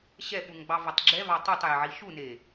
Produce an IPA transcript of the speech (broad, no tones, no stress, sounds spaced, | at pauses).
ɕ ɛ ɓ u ŋ ɡ͡b ɑ v ɑ tˤ ɡ͡ǁ ɛ v ɑ tˤ u tˤ j e ʕ i ʃ u n e